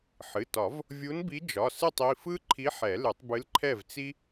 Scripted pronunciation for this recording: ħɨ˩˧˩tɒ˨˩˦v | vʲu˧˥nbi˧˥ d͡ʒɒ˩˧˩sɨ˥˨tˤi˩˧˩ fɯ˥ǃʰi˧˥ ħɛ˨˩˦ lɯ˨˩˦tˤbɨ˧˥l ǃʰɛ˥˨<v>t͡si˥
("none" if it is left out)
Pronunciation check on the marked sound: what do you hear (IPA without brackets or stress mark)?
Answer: v